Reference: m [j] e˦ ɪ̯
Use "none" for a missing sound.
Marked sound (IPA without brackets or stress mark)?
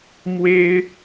w